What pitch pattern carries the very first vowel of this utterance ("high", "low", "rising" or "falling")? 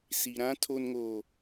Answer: low